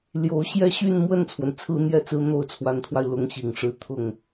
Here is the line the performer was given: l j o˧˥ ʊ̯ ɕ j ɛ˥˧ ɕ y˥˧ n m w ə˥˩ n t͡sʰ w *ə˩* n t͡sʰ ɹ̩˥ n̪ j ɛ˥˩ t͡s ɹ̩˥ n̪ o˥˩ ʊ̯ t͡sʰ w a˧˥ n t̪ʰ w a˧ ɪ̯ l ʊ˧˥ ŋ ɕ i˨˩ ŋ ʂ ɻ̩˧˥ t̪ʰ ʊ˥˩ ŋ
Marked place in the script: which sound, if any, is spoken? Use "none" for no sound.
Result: ə˩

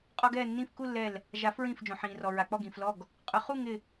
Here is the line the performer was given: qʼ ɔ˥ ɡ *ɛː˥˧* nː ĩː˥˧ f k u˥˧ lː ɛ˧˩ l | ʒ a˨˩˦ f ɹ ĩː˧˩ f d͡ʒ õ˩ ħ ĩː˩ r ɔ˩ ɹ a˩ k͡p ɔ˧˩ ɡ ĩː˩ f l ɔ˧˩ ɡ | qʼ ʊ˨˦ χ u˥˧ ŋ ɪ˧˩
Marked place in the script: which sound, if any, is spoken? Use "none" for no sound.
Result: ɛː˥˧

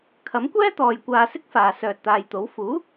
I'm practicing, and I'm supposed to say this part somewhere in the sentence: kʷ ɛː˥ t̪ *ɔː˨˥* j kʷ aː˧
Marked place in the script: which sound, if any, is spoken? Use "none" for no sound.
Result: ɔː˨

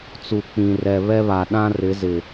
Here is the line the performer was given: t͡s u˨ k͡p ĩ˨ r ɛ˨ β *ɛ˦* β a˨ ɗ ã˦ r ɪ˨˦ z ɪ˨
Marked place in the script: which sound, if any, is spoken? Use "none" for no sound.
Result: ɛ˦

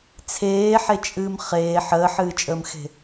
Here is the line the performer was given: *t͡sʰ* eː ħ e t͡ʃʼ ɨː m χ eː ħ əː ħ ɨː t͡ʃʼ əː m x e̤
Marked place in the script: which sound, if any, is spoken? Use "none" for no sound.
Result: t͡sʰ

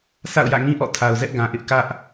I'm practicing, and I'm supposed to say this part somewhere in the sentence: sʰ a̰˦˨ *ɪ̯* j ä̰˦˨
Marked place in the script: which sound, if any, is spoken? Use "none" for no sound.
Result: ʊ̯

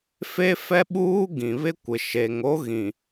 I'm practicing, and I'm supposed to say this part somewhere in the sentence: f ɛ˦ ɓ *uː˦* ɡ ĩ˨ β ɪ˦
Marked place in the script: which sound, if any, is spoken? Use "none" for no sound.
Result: uː˦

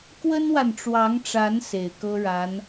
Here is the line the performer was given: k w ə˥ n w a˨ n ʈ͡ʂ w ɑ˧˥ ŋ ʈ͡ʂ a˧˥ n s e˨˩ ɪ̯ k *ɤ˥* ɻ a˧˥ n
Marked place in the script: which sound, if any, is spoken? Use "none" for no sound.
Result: ɤ˥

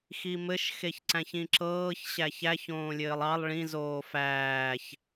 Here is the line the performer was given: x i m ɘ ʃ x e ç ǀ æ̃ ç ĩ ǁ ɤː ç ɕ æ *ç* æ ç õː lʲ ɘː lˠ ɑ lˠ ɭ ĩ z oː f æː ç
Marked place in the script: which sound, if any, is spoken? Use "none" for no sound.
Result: ç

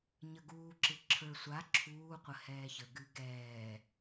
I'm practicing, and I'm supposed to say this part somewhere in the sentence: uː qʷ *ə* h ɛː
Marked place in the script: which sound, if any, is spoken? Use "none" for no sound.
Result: ə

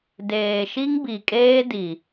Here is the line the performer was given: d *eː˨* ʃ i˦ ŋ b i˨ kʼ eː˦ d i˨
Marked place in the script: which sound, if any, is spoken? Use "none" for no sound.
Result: eː˨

